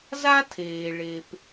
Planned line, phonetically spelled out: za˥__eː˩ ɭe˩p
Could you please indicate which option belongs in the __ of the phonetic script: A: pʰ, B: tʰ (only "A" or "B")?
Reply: B